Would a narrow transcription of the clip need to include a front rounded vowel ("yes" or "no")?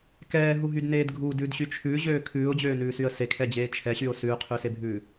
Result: yes